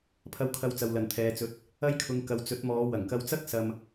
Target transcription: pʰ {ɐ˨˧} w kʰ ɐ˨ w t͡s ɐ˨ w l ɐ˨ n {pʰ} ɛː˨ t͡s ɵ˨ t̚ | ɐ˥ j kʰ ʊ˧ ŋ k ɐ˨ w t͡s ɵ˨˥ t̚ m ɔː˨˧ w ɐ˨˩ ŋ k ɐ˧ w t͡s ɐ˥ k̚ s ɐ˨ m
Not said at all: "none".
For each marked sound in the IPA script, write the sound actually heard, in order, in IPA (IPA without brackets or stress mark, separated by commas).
ɐ˨˧, t̪ʰ